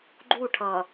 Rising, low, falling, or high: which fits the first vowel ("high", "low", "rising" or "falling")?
falling